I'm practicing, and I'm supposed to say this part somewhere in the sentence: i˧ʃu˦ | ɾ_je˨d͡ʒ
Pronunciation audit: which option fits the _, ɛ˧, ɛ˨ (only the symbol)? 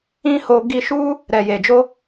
ɛ˨